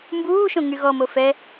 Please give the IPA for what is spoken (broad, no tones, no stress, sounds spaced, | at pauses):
m b uː ʃ õ ŋ y ɣ ɔ m o f ɛ